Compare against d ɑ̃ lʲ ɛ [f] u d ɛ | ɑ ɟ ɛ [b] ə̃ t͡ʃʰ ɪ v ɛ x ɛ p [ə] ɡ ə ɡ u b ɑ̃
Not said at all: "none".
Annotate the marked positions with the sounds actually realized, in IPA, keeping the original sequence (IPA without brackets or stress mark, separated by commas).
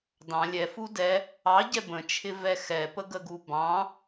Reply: f, b, ə